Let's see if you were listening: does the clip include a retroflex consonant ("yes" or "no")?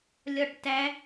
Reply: yes